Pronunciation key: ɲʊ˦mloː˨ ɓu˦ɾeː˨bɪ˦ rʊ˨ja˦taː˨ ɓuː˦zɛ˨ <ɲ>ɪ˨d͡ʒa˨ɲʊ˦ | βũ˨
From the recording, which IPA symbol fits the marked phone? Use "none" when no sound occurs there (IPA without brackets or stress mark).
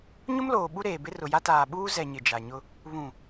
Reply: ɲ